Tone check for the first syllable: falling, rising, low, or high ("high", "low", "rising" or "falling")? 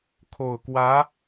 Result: low